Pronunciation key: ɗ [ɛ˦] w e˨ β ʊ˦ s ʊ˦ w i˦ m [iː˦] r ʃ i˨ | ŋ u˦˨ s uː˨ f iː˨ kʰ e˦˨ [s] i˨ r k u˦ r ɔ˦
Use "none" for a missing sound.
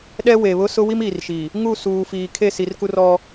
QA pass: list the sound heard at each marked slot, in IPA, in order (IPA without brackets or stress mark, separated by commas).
ɛ˦, iː˨, s